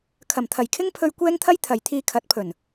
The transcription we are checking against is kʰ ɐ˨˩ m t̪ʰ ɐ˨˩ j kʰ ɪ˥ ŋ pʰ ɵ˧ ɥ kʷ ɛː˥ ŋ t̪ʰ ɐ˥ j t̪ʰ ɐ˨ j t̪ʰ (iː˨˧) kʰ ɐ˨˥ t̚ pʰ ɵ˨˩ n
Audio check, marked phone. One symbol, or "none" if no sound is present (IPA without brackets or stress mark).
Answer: iː˧